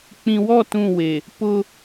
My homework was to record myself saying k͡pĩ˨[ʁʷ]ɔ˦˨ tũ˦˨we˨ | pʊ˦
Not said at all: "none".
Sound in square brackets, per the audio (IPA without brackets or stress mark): w